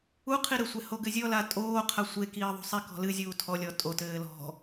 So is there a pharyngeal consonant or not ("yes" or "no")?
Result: no